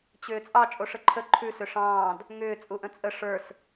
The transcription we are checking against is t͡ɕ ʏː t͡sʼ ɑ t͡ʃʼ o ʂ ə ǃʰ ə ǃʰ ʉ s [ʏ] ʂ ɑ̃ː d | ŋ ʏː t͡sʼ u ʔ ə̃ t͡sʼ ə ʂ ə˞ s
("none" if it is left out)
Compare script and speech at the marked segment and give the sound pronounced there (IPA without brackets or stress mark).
ʏ